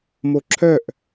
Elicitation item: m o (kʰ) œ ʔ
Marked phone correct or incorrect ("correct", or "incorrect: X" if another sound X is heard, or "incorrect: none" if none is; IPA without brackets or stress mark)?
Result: incorrect: ǁʰ